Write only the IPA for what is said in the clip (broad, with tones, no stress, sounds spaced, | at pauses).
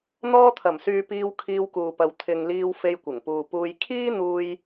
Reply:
n̪ ɔː˧ t̪ʰ ɐ˨˩ m s yː˨ p iː˧ w kʰ iː˧ w k uː˨ p ɐ˨ w t̪ʰ ɪ˨ ŋ l iː˧ w f e˧ j kʷ ɪ˨˩ ŋ p uː˨ p uː˧ j kʰ iː˥ n̪ uː˧ j